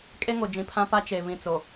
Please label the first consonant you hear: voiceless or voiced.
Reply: voiceless